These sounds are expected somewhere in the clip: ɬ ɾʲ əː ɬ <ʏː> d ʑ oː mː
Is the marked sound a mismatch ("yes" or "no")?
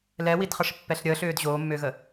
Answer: no